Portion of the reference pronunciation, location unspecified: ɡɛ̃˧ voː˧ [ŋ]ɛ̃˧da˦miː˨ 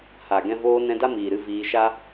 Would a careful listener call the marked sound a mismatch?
yes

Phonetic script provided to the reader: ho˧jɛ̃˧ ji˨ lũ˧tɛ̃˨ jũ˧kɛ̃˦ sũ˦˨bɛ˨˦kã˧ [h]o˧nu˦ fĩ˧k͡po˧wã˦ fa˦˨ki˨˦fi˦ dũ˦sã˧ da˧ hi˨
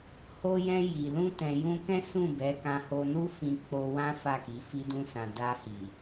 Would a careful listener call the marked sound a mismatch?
no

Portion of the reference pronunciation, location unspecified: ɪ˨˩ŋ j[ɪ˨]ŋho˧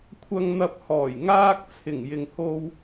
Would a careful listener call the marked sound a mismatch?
no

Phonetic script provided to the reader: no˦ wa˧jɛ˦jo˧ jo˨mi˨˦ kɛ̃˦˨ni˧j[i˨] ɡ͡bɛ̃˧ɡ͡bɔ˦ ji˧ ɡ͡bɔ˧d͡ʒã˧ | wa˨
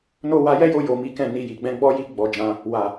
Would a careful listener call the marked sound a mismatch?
no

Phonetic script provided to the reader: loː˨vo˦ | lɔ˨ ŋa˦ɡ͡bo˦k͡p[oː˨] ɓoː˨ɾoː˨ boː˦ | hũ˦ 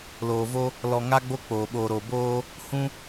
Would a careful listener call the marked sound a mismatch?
no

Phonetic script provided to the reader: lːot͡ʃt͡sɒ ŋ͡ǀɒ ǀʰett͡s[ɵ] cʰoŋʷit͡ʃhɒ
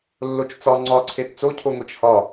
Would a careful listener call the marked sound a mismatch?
yes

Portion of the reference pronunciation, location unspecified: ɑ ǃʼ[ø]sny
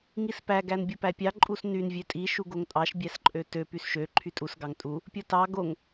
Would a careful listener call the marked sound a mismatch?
yes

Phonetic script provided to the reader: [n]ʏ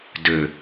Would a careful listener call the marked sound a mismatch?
yes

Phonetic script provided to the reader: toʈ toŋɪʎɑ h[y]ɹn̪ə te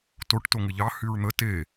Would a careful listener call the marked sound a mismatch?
no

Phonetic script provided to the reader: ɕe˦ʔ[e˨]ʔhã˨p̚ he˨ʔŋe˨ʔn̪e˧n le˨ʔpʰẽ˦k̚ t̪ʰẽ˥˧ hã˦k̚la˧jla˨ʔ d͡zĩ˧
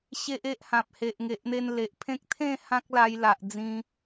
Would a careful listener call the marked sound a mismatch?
yes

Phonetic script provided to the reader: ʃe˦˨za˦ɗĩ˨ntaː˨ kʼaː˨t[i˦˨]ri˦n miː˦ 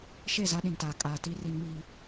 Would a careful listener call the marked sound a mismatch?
yes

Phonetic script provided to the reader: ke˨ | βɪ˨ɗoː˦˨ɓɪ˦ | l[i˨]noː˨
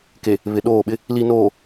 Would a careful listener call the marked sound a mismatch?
no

